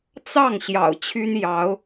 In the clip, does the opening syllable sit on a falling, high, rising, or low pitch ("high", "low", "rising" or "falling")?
falling